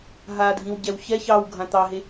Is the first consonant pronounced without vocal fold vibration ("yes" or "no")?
no